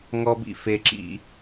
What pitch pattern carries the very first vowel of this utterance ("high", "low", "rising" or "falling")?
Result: high